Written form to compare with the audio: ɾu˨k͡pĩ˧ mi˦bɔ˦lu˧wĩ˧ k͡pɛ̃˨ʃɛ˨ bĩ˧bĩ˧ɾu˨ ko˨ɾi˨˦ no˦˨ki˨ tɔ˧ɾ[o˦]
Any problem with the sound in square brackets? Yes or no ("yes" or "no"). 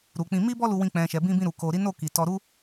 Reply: yes